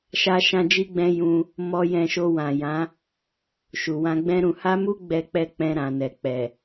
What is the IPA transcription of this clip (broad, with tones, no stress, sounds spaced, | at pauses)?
ʃ a˧ ʃ ã˦ d͡ʒ i˦ ɡ͡b ɛ̃˦ j ũ˧ | m ɔ˧ j ɛ̃˧ ʃ o˧ w ã˨ j ã˨˦ | ʃ u˨ w ã˧ ɡ͡b ɛ̃˦ ɾ ũ˧ h a˦ m u˦ ɡ͡b ɛ˦ k͡p ɛ˦ k͡p ɛ̃˧ ɾ ã˨ n ɛ˨ k͡p ɛ˨